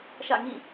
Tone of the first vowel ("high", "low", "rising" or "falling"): falling